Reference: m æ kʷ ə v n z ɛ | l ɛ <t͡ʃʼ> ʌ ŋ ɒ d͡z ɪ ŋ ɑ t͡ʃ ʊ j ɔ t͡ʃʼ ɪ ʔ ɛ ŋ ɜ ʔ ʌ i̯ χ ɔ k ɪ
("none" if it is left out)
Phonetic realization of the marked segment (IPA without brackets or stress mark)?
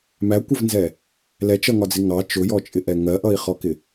t͡ʃ